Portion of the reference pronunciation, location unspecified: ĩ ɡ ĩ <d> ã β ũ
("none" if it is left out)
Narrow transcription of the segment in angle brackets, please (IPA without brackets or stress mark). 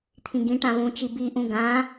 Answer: ʈ